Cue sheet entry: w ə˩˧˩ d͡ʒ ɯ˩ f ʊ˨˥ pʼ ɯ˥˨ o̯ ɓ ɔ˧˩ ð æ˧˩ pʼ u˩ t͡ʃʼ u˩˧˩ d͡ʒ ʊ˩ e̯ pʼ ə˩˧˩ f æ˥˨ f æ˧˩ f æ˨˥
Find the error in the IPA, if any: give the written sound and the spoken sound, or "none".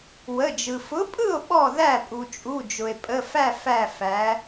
none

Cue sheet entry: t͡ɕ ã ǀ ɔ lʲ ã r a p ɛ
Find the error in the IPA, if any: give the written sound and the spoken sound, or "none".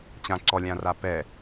none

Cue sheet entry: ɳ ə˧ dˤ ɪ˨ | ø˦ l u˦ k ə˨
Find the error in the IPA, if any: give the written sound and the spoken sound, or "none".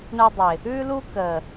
ø˦ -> ʉ˦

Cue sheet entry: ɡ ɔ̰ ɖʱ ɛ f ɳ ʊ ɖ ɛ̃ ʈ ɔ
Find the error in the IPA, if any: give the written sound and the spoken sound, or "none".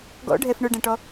none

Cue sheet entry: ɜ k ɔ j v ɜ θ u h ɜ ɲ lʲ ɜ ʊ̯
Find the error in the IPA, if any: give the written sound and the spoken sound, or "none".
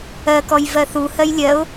ɲ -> j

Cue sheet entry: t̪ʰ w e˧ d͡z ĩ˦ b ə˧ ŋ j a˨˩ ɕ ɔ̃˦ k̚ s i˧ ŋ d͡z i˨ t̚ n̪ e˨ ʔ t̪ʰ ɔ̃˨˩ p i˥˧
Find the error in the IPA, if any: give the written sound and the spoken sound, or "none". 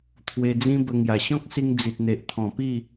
none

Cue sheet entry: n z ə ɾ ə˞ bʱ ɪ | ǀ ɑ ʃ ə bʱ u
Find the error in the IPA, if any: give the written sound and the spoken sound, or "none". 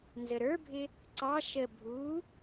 none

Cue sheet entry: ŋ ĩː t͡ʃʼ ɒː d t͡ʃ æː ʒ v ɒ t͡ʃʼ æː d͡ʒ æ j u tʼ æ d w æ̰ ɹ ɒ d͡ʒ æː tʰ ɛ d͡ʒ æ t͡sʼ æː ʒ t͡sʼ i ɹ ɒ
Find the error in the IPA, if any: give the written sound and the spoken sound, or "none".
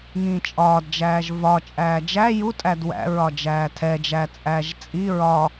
t͡ʃ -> d͡ʒ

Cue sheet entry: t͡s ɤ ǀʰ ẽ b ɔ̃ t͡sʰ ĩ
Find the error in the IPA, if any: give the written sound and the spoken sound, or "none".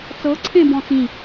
t͡sʰ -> t͡s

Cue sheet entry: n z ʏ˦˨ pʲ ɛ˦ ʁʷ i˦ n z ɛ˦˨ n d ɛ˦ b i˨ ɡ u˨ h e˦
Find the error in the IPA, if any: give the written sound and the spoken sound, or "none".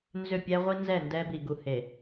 e˦ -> e˨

